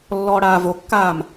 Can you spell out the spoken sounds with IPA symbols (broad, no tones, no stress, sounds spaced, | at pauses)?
lː ɔː ɽ aː v o kː aː m